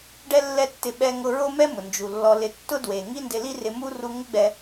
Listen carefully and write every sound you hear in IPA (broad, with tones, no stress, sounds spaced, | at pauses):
ɖ ɛ˦ lː ɛ˦ tː ɪ˧ ɓ ɛ˧ ŋ ʊ˧ ɹ o˦ m ɛ˦ m ʊ˨ n d͡ʒ u˨ lː ɔ˧ l ɪ˧ tː ʊ˦ d w e˨ ŋ i˦ n d ɪ˧ l i˦ r ɪ˧ m u˦ r u˧ ŋ ɪ˦ ɡ͡b ɛ˧